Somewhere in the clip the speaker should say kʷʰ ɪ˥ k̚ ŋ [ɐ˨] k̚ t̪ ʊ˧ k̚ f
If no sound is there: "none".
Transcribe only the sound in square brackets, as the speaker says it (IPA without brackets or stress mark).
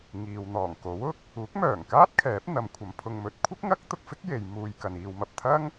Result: ɐ˥